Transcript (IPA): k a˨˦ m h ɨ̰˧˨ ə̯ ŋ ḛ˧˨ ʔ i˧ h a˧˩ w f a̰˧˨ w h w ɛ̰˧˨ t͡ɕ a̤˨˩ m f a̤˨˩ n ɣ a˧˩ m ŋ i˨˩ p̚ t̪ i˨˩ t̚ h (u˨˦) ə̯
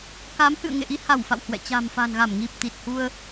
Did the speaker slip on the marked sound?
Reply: yes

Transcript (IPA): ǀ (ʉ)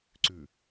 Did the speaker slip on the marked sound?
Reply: no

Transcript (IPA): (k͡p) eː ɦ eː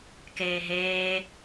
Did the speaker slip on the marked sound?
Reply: yes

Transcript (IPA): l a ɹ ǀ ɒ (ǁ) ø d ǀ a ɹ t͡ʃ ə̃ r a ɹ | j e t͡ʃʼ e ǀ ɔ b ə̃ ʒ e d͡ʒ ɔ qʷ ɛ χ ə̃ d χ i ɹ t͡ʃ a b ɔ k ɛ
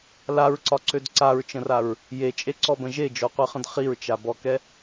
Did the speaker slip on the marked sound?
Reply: yes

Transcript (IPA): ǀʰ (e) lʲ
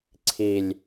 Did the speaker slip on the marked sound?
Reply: yes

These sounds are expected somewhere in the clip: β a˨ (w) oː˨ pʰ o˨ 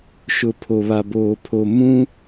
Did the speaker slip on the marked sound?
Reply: yes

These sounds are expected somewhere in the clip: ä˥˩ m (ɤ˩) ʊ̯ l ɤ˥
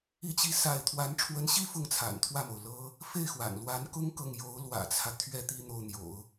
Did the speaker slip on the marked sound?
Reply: yes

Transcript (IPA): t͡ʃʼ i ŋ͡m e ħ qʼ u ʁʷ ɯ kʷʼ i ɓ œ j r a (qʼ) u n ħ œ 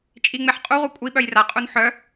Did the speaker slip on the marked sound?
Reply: no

